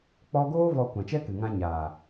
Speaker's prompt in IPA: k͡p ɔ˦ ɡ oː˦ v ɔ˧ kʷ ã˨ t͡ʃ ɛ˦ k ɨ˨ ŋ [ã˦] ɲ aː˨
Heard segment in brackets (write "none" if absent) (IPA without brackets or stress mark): ã˧